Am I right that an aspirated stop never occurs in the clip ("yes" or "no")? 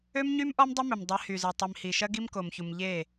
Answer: yes